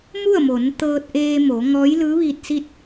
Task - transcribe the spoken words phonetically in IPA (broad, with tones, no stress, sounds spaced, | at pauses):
m u˥˨ ə̯ m o˩˧ n t̪ ɤː˧ t̚ ʔ eː˧ m oː˩˧ ŋ ɔː˧˥ j l ɯː˧˥ ʋ iː˧ t̚ s i˥˨ t̚